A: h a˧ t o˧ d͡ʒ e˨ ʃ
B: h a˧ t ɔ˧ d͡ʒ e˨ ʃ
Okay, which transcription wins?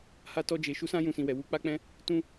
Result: B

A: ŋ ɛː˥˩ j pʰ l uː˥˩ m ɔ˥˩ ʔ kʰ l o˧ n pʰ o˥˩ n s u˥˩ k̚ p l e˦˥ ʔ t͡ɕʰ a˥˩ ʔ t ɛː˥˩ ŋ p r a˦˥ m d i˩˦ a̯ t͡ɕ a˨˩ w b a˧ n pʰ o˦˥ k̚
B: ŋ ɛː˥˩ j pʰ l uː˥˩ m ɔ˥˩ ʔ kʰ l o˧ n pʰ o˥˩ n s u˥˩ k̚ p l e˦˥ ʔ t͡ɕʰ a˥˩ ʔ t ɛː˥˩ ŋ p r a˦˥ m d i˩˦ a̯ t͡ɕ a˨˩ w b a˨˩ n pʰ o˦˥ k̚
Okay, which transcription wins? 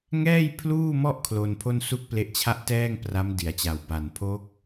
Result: B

